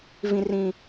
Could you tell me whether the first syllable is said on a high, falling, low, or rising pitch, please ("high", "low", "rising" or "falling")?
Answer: low